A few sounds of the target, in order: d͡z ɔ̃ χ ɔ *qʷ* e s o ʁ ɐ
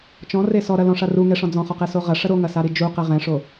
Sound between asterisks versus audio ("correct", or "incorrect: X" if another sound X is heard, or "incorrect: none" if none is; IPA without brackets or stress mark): incorrect: q